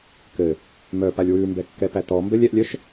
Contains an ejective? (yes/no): no